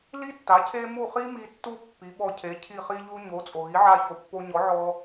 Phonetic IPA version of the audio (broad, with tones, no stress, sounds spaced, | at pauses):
l i˥ tː a˩˥ cʰ e˥ m u˥˩ χ i˥ m i˧ tː u˥ pː i˩˥ ɓ ɔ˧ cʰ e˩˥ cʰ i˥˩ χ i˥ ʎ u˥ ɲ o˩˥ t͡sʼ o˩ ɣ i˩˥ ʕ a˧ ç o˩˥ pː o˧ ɲ ɔ˩˥ ʕ ɔ˧